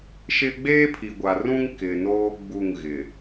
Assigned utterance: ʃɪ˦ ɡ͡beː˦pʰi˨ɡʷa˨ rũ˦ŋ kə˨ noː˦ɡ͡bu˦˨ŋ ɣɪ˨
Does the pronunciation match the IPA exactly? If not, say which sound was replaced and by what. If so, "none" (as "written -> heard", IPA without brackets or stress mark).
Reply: ə˨ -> ɪ˨